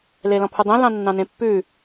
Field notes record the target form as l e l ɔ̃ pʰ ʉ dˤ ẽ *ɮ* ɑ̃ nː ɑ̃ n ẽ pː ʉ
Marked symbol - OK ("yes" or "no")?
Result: no